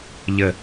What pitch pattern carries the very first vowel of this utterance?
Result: low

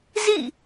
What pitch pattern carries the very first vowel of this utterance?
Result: falling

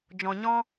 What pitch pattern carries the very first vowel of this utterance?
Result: low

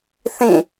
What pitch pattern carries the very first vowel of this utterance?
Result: falling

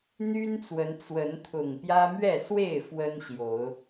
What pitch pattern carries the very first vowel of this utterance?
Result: high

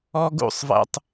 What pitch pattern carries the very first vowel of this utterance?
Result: high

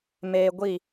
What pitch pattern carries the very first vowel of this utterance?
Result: high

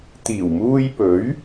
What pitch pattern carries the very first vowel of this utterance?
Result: low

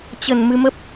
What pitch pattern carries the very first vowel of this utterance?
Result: low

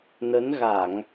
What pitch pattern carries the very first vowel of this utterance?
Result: rising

